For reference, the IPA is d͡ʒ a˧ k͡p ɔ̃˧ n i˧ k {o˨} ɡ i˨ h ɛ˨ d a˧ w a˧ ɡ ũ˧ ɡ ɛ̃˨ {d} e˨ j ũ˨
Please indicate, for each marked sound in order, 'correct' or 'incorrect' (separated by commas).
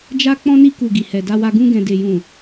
incorrect, correct